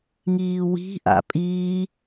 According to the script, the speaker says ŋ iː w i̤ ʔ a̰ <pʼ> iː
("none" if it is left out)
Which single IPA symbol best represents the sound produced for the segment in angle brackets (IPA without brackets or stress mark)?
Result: pʼ